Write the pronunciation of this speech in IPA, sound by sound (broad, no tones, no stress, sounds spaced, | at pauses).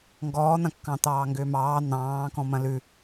ŋ ɡ ɔː n̪ ɐ̃ kː ɑ̃ t̪ ɑː ŋ ɡ ʏː m ɑː n̪ ɑ̃ː k ɔ̃ m ɐ̃ l ʉ